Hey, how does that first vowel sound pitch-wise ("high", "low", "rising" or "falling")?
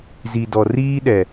low